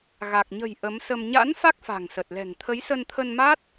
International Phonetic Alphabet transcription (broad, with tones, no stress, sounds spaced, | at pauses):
ɣ a˨˩ k̚ ɲ ə̤˨˩ j ʔ ə˨˦ m s ə˧ m ɲ a̰˧˥ n f a˦˥ k̚ f a̤˨˩ ŋ s ə˨˩ t̚ l ɛ̤˨˩ ŋ t̪ʰ ə˨˦ j s ə˧ n t̪ʰ ə˧ n m a˦˥ t̚